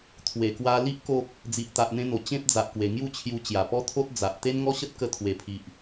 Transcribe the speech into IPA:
t̪ʰ w e˨˩ k w a˧ l i˦ ʔ k o˦ k̚ | d͡z i˨ ʔ t̪ a˨ ʔ n̪ ẽ˧ n̪ o˨˩ t͡ɕ ẽ˦ p̚ d͡z a˨ ʔ k w e˨˩ ŋ j u˥˧ t͡ɕʰ j u˧ t͡ɕ j a˨˩ p ɔ˦ t̪ʰ o˦ t̚ d͡z a˨ ʔ t̪ e˦ n ŋ ɔ˦ ɕ ə˦ t̚ k ə˧ t̪ʰ w e˨˩ pʰ i˨ ʔ

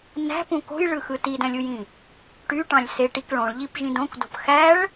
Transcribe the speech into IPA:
n æ̤ p ũ k o̤ j ɭ ɯ x ɯ t i d æ̃ lʲ u j ĩ | ʈ y ʈ ɑ̃ lʲ s e ʈ i k ɭ õ ɭ ʎ i p ʒ ĩ d õ k d o̤ p x æ ɭ

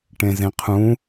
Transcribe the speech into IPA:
ʈ ẽ z ẽ qʰ ũ

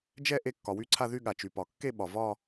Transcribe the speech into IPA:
d͡ʒ ɛ˥˧ ʔ e˥˧ kː ɒ˩ w y˥˧ ǀʰ a˥˧ ð y˥˧ ɠ a˩ t͡ʃ y˩ p ɒ˩ kː e˥˧ ɓ ɒ˩ v ɒ˥˧

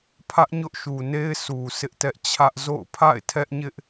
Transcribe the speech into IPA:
pʰ ä˦ ʔ ɲ ʊ˦ ʔ ʃ u˨ n e˦ ɪ̯ s u˨ sʰ ɪ˦ ʔ t ɛ˦ ʔ t͡ɕʰ ä˦ ʔ z o̰˦˨ ʊ̯ pʰ a̰˦˨ ɪ̯ tʰ ɛ˦ ʔ ɲ ɪ˦ ʔ

